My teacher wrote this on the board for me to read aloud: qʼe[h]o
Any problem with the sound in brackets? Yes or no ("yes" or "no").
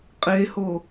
no